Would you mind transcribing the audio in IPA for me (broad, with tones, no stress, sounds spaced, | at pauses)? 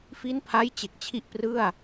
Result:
f i˦˥ n pʰ a˦˥ j t͡ɕ e˨˩ k̚ t͡ɕʰ i˦˥ ʔ p r ɯ˥˩ a̯